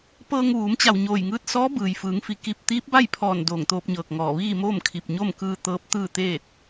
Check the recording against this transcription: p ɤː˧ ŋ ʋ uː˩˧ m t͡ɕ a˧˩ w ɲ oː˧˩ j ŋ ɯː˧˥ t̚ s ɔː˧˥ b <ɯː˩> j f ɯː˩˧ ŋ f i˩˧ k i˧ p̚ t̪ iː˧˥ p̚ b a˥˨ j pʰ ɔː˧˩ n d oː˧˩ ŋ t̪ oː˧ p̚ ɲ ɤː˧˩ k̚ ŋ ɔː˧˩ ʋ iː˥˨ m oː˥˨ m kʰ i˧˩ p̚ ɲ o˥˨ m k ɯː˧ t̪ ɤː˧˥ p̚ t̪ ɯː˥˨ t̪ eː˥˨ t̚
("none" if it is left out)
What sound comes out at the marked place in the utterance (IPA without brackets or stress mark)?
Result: ɯː˩